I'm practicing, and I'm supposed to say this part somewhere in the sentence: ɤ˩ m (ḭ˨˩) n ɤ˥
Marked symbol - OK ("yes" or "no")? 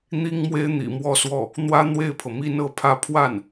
no